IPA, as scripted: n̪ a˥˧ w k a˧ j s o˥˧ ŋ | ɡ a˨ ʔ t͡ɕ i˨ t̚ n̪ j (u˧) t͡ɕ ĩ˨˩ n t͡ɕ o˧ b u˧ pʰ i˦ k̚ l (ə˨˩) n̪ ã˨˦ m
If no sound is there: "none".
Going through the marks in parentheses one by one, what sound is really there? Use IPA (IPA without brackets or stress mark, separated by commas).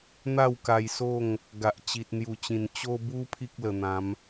u˨˩, ə˨˩